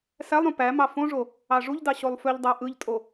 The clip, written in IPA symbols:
s æ lˠ ɾ ũ p æ m ɑ f õ ʐ o | ɑ ʐ u ʎ d ɑ ɕ o lˠ f ø ʎ dˤ æ ʔ ɯ ʎ tʼ o

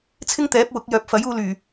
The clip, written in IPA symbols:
t͡sʰ ɪ˥ ŋ t̪ ɛː˨˥ p̚ w ʊ˨˥ k̚ j œː˨ p̚ f ɐ˨˥ j uː˧ l yː˨˩

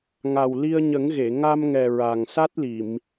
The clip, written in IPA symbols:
ŋ a˨˩ w l i˧ ə̯ ɲ ə˨˩˦ ŋ ɣ e˨˩˨ ŋ a˧ m ŋ ɛ˨˩ ɹ a˨˩ ŋ s a˦˥ t̚ l i˨˩˨ m

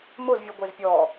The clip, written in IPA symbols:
m ʊ z vʲ u ɡʷ e z pʲ ɔ

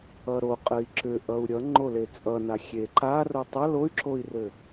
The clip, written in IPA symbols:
ʌ ɾ o qʼ ɘ i̯ ǁ ʏ ʔ ʌ u̯ ɾʲ ʌ ŋ͡ǃ o l e t͡sʼ ʌ n a xʲ e ǃ a r o tˤ ʌ l o y̯ ǁ o i̯ r ɘ

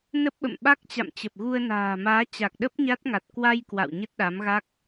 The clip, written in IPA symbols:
n ə˦˥ p̚ ɓ ə̰˧˨ m ɓ a˦˥ k̚ t͡ɕ a̰˧˨ m t͡ɕ ə˨˩ p̚ ɣ u˧ ə̯ n a̤ː˨˩ m aː˨˦ t͡ɕ a˨˩ k̚ ɗ ə˦˥ p̚ ɲ a˦˥ t̚ ŋ a˨˩ t̚ k w a˧ j k w a̰˧˨ w ɲ ə˦˥ t̚ ɗ a˨˦ m ɣ a˦˥ k̚

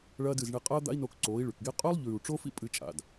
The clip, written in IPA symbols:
ɭ ɐː˦ d ɨ˦˨ z ɳ e˦ qʼ ɐː˦ d̪ a̰˦ i̯ n o˧ k ǀ oː˨˦ i̯ ɭ ʉ˨ k ɡ e˦ qʼ ɵː˦ lˠ ʎ ʉː˨ u̯ ʈ͡ʂ o˦ f ḭ˦ pʼ ɨ˦ t͡ʃʼ a̰˨ d

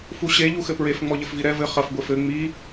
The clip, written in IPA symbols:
f u ɕ e ʎ u x ɘ p ɹ e f ŋ͡m ɔ ʎ ɘ f v i ɾ ɛ v ɘ χ ɐ f ɡʷ e f ɘ ŋ͡m i

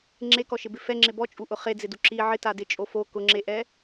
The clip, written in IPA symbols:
ŋ͡ǁ e k ɔ ʃ ɪ b ɪ f ɛ ŋ͡ǁ ɪ b ɔ t͡ʃʼ u ʔ ʊ χ e d͡z ɪ d u ǁ i ʕ ɪ t a d ɪ t͡ʃʼ o f o k ʊ ŋ͡ǁ e ʔ ɛ

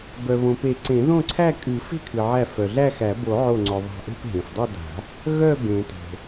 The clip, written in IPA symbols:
b œ˩ β õ˩ p e˨˩˦ ǀ ẽ˨˩˦ ð õ˥˧ ǀʰ æ˥˧ kʼ ɨ˨˩˦ f e̤˥˧ kʰ ɨ˩ ʕ æ˧˩ f œ˩ ɮ æ˥˧ x æ˨˩˦ b o˨˩˦ ʕ o˧˩ ŋ͡ǀ œ˩ ðˤ a̤˧˩ ʔ e̤˥˧ p ɦ ẽ˩ f dˤ ʌ˥˧ d a̤˨˩˦ | ɣ œ˥˧ b ẽ˨˩˦ t o̤˩

